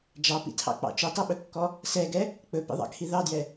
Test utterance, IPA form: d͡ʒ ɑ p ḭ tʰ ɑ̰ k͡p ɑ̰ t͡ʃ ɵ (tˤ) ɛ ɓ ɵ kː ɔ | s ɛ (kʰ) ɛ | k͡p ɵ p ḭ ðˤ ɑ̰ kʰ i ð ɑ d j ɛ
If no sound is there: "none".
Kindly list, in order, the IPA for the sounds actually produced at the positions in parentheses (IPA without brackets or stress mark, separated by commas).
tˤ, ɡ